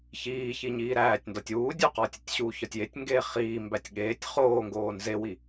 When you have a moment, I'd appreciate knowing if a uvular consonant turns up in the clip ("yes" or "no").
yes